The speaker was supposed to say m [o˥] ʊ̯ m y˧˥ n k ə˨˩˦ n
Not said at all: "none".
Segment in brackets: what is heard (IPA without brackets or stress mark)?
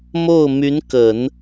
o˥˩